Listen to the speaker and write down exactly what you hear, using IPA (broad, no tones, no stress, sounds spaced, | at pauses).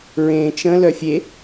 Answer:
ɹ ẽ t͡ʃ ə̃ l œ fʲ e